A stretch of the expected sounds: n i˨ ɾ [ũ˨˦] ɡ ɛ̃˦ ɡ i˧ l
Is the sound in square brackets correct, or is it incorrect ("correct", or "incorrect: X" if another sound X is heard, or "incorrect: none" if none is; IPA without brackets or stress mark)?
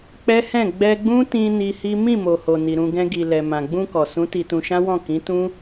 incorrect: ũ˧